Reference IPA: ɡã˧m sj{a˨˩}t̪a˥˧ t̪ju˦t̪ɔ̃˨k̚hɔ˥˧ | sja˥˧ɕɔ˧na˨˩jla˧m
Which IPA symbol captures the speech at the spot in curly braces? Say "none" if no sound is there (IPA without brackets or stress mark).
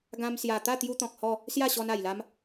a˨˩